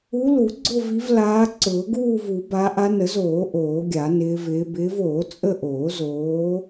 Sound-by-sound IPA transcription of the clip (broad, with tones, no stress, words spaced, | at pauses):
u˨˦lu˨˩˦ ɡ͡ǀʊ˦˨vi˨˦vlaː˨˦ ǀʊː˨˩˦ɡuː˦˨vu˨˩˦ baː˨˦ʔa˨˦nə˨˩˦zoː˨˩˦ ʔoː˨˩˦ɡʲa˨˩˦nɪː˨˦vɪː˨˦ bɪː˨˦voː˨˩˦ t͡sʼə˦˨ʔoː˨˩˦zoː˨˦